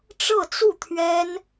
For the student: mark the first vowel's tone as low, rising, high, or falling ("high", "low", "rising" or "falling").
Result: falling